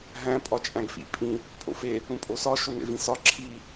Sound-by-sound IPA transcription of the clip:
ɦ æ̃ pʼ ɒ t͡ʃʼ æ̃ ɡ f ḭ pʼ ĩ | pʼ o̰ f e | ũ pʼ o s ɒ ʃ o n ḛ v ĩ s ɒ ǁʰ i

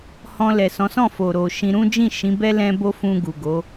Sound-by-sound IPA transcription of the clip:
h ɔ̃˧ l ɛ˨ s ɔ̃˨˦ s ɔ̃˦˨ f o˨ ɾ o˨ ʃ ĩ˧ ɾ ũ˦ d͡ʒ ĩ˦˨ ʃ ĩ˨˦ b ɛ˦ l ɛ̃˦ b o˦ f ũ˧ ɡ u˨ ɡ o˨˦

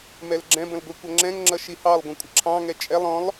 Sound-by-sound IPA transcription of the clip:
m ɛ l ɡ͡ǁ ɛ̃ b ə̃ l ɡʷ i kʷ ʌ ŋ͡ǁ ɛ̃ ŋ ŋ͡ǁ ʌ ʃ i h ɑ lˠ ɡʷ ə̃ kʷʼ ə ǁʰ ɑ̃ ŋ ɛ t͡ʃʼ ɛ lˠ ɔ̃ lˠ

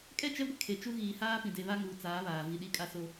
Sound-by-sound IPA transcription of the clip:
kʼ ɛ˦˨ t͡ʃ ɛ˦ ɡʷ e˦ kʰ e˨ t͡ʃ u˦ ɣ iː˨ h aː˦ p ĩ˨ d e˦ β a˦ ŋ uː˨ t͡s aː˨˦ β aː˨ v i˨ ɗ i˦ kʼ a˦ s o˦

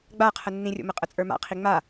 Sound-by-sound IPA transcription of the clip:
ɡ͡b a qʰ ə nː ĩ rʲ o̰ m ə qʼ ə t͡sʼ ə˞ m a̰ qʰ i ŋ͡m a

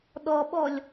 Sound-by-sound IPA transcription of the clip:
ɗ ɔ ɓ ɔ lʲ

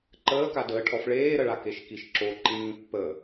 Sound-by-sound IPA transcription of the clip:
ǃ əː k a d əː ʈʰ ɔ f ɭ eː ɾ ə ɭ a k e ʃ k i ʃ ǁ o ǃ ĩː pː ə

